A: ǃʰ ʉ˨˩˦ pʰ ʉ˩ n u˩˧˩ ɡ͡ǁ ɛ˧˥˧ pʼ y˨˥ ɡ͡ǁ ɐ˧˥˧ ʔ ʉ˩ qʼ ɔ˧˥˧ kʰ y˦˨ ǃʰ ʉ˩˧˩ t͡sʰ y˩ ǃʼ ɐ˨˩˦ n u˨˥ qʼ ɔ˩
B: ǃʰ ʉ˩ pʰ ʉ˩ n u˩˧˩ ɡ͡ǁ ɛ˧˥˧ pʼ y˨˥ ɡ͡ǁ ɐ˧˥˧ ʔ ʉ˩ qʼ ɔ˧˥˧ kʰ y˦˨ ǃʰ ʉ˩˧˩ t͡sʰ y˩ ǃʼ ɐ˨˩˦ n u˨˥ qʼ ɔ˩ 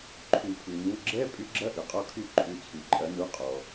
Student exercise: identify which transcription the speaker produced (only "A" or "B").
A